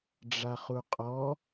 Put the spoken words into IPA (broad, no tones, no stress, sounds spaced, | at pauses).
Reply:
ɖ͡ʐ a χ u qʼ ɔ